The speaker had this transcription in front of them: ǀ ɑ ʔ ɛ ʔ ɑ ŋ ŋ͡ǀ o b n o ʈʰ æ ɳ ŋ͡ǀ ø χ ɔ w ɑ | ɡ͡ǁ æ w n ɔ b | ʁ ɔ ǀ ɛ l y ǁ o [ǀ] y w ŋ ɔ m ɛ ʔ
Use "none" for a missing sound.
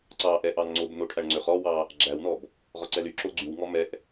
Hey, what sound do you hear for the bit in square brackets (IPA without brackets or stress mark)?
ɡ͡ǀ